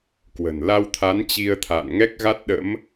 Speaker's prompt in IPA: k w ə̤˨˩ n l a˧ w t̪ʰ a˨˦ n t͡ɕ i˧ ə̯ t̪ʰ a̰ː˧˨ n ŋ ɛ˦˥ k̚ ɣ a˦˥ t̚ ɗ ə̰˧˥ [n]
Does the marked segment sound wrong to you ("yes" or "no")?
yes